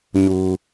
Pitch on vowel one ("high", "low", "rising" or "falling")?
high